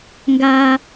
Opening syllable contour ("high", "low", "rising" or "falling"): high